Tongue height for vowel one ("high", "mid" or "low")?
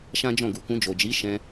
low